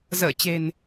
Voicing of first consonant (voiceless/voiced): voiced